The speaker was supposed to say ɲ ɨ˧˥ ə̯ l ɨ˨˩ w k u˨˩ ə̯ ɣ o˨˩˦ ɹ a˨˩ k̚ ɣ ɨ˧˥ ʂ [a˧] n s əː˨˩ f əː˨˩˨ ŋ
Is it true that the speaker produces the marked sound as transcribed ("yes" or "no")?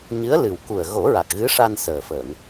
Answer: yes